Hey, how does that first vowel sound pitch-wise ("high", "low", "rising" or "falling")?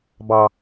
low